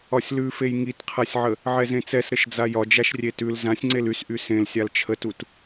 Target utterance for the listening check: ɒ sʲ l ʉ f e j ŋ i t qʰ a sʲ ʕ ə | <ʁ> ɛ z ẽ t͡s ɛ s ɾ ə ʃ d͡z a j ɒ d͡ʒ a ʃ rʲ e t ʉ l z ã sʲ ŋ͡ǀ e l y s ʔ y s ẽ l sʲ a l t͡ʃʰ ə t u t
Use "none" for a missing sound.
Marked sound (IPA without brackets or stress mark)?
ʕ